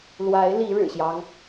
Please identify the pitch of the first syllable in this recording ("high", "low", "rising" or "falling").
rising